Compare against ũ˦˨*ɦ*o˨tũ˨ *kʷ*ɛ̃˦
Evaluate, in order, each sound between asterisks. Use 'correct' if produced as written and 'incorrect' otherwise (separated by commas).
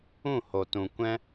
incorrect, correct